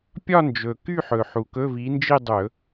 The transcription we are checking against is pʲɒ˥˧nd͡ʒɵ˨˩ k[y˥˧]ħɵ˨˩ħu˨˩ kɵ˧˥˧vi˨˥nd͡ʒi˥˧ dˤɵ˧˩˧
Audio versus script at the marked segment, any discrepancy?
no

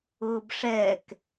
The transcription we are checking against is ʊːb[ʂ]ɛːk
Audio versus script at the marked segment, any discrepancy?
no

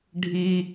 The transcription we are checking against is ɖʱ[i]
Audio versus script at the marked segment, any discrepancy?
no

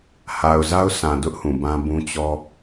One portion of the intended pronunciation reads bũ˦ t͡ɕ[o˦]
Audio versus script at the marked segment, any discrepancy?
yes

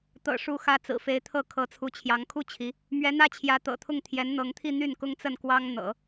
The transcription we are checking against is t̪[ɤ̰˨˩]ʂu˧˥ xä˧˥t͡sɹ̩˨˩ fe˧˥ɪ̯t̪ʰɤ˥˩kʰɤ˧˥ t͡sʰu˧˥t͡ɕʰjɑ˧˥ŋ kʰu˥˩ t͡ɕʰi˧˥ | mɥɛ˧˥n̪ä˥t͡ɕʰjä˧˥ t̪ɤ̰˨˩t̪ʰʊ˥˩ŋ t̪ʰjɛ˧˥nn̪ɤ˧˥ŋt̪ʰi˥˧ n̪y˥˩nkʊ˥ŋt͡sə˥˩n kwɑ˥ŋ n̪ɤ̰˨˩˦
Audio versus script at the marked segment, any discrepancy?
no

